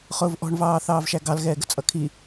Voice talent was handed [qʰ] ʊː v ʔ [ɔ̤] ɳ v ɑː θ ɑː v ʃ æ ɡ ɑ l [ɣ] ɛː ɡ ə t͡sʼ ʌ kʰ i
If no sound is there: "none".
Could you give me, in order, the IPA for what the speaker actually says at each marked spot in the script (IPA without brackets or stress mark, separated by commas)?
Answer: χ, ɔ̤, ɣ